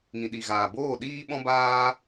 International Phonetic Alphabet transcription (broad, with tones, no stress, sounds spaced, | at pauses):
ŋ ĩ˨ ɗ i˨ ɣ aː˨ b oː˦˨ ɗ iː˦ ɓ ɔ̃˦ b aː˦